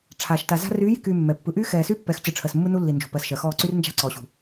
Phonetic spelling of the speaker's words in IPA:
ʈ͡ʂʰ aː˨ ʃ t a˨ z a̤˦ r yː˨˦ j i̤˨ k yː˨ mː ɛ˨ pː ɯ˨ ʔ yː˦ x ɛː˨ s yː˦ pː ɛ˨˦ x t͡ɕ ɯ˨ ʈ͡ʂʰ ɜ˨ s mː ɯ˦ n u˦ lː i˨ n d͡ʒ ṳ˨ p ɜ˨ s ʃ ɜ˨ x ɔː˦˨ ǀ y˦ r n d͡ʒ a̤˦ ǀ ɔː˨ ɕ ṳ˨

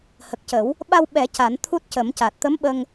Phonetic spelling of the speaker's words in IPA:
h ə˨˩ k̚ c ə˨˩˦ w | ɓ a˧ w ɓ ɛ˨˩˦ c a˨˩˦ n t̪ʰ u˦˥ t̚ c ə˨˩˦ m c a˨˩ t̚ t̪ ə˧˥ m ɓ ə˧ ŋ

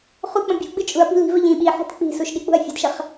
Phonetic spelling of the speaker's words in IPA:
χ u k͡p ə̃ bʲ ṳ ɡ͡b ɨ t͡ʃʼ u ɐ̯ p i̤ l i̤ v ə ʎ ĩ ɓ i ħ i̤ t k͡p i̤ s u ʃ ɗ i k͡p ṳ ɐ̯ fʲ ə̤ d ʃ ə χ

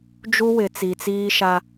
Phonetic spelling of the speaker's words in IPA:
d͡ʒ u˦ w ɪ˨ t͡s i˨ t͡s iː˦ ʃ a˦

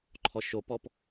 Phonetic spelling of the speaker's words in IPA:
ǃʰ ɔ ʃ o p ɔ p

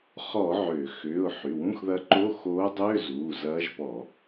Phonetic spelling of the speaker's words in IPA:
χ ɔ˧˩˧ ʕ ʏː˧˩˧ x ʏː˩˧˩ ʊ̯ ħ y˩˧˩ w ũ˧˥˧ x ð ɐ˧˥ ǃ o˧˥˧ x oː˧˥ dˤ ʏː˧˥˧ z uː˩˧˩ z ɐː˧˥ ʒ p ɔ˧˩˧

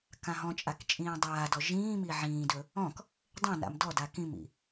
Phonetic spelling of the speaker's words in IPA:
k ã ɦ ɔ̃ t͡ʃʼ a k t͡ʃʼ ĩː dˤ aː d ɔ ʒ ĩː m i ʕ ĩː d ɵ | ɔ̃ k | dˤ ẽ n a̰ m d ɔ d a k ĩ m ḭ

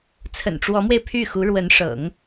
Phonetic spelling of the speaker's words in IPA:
t͡sʰ ə̰˨˩ n ʈ͡ʂ w ɔ˧˥ m w e˧ ɪ̯ pʰ y˥˩ x u˧˥ ɻ w ə˧˥ n ʂ ɤ̰˨˩˦ ŋ

